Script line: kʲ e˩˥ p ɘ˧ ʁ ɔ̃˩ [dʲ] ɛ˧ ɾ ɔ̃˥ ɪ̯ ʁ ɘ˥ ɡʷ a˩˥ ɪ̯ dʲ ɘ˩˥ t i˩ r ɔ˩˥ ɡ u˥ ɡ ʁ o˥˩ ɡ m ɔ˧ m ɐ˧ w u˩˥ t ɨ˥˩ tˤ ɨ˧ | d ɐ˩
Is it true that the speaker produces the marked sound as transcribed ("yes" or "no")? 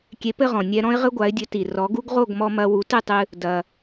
no